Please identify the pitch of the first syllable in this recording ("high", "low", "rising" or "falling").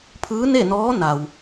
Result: rising